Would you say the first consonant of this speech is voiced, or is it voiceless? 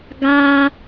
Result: voiced